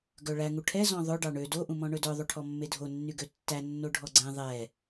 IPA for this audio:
ɡ œ ɭ æ ŋ u ʈʰ ɛ z ɔ̃ ðˤ ɵ ɖ ɑ ɳ ø d o ʔ ũ m ɔ̃ ɳ ɵ d œ ðˤ o ʈʰ ɔ mː e dʱ o nː y ɡ ø tː æ nː o ɖʱ ɔ ɡ͡ǀ ɛ̃ ðˤ ɛ

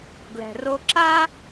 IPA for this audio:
ɡ l ɛ̤˩ r o˧ ǁ a˥

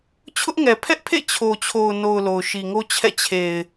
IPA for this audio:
t͡ɕʰ ʊ˦ ʔ ŋ ɛ˨ pʰ ɛ˦ ʔ pʰ ḛ˦˨ t͡ɕʰ o˨ t͡ɕʰ o˨ ʊ̯ n o˨ ʊ̯ l o˨ ʊ̯ ʃ i˨ ŋ o˦ t͡ɕʰ ɛ̰˦˨ t͡ɕʰ e˨ ɪ̯

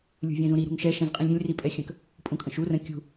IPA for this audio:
lʲ ṳ vʲ ɛ̃ z ũ ɾ i ɾ ṳ ŋ ʃ ɛ ʃ ɛ̃ z qʼ ĩ lʲ ɾʲ ə̃ lʲ r i pʼ ɛ xʲ ə̃ k | pʼ ũ kʼ ə̃ ʃ u r ə̃ kʲ ṳ

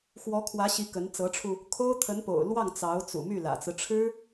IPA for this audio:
x w ɔ˧˥ kʰ w ä˧˥ ɕ i˧˥ k ə˧˥ n t͡s ɤ˧˥ ʈ͡ʂʰ u˧ | kʰ o˥ ʊ̯ t̪ʰ ə˧˥ n p o̰˨˩ ʊ̯ l w ɑ˥˩ ŋ t͡s ɑ˧˥ ʊ̯ t͡s ṵ˨˩ m y˥˩ l ä̰˨˩ t͡s ɹ̩˦ ʈ͡ʂʰ ɻ̩˥

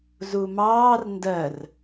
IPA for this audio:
z u m ɑː r n d ɜ r

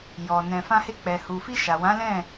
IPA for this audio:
j ɔ˨ n ɛ̃˨ f ã˧ h e˧ k͡p ɛ˨ h u˨ f i˧ ʃ a˨ w ã˨˦ l ɛ̃˦˨

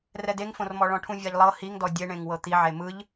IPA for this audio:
r ɛ d e ŋ f õ r m ɔ ɭ ɔ̃ ʈʰ ũ vʲ a ʎ lˠ ɤ h i ŋ d ɔ dʲ e ɳ ẽ ŋ w ɤ t̪ i ʕ e m ɯ ʎ

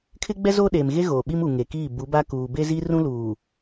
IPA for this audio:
kʰ ɪ˦ ɡ͡b ɛ˦ z oː˦ ɗ eː˨ m ɣ e˦ ɣ oː˨ ɓ i˦ m u˨ ŋ e˨ k iː˦˨ b u˨˦ b a˦ k uː˨ b e˦ z i˦ r ũ˦ l uː˨

